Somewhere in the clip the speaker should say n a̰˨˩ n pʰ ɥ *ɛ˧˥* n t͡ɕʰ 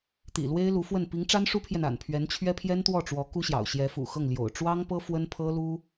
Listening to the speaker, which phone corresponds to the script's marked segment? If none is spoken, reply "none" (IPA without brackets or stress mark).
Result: ɛ˧˥